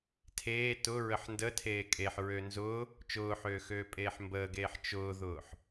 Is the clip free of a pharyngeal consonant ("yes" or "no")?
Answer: no